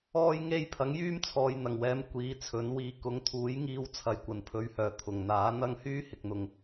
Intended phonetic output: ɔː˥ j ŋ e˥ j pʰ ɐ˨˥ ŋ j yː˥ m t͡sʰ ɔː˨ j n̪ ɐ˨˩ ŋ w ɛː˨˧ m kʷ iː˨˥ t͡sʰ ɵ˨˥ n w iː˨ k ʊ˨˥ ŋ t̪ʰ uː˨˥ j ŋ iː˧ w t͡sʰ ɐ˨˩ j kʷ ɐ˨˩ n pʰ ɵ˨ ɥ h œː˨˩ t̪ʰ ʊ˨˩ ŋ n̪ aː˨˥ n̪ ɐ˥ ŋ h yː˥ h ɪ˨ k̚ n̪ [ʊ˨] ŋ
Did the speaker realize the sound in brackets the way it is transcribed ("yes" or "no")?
yes